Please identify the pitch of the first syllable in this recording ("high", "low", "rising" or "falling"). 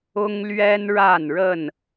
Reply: high